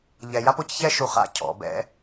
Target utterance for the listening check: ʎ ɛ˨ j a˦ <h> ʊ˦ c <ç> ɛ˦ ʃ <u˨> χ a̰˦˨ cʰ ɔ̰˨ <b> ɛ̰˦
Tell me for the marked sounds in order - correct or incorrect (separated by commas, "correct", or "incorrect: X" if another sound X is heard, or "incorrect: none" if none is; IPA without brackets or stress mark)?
incorrect: p, correct, correct, correct